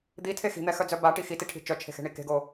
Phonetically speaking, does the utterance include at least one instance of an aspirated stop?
yes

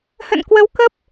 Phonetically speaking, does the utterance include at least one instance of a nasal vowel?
no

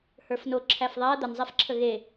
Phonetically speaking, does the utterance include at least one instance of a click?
yes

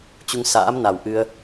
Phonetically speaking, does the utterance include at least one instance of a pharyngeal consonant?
no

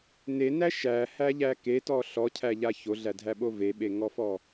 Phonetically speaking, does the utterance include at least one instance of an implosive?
yes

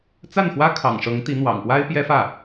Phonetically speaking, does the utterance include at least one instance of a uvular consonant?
no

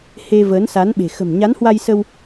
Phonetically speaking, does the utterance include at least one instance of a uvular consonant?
no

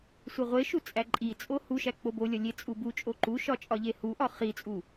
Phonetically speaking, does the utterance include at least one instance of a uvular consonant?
yes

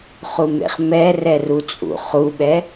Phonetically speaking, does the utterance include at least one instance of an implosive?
yes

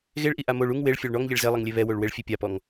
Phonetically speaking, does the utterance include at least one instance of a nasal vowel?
no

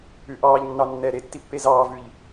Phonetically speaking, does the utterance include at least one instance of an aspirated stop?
no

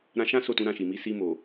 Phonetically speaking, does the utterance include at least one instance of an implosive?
no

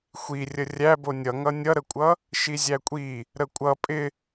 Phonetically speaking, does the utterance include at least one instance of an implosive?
no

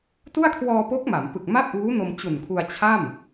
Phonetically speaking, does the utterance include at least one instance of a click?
no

